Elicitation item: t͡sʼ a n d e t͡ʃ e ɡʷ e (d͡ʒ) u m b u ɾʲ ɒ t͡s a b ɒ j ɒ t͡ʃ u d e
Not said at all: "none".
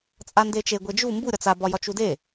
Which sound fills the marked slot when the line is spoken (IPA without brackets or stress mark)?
d͡ʒ